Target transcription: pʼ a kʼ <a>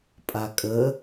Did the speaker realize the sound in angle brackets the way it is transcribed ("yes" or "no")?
no